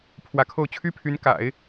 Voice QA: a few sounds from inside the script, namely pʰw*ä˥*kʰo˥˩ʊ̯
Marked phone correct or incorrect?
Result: incorrect